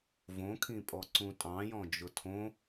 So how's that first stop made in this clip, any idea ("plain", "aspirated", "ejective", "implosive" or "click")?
aspirated